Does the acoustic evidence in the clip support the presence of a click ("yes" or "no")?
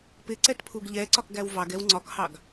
yes